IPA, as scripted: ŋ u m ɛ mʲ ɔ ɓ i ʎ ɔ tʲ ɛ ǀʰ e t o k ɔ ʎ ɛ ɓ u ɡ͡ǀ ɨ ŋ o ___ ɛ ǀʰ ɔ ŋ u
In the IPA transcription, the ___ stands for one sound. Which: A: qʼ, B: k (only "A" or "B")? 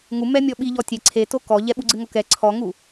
B